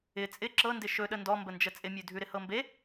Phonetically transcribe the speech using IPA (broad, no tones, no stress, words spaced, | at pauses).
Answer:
ɪ t͡sʼɪ ǁɤndɪ ʃɵɗə ndɔmbənd͡ʒə t͡sʼɪmʲʉdʱʉ ɾɪhɤmbe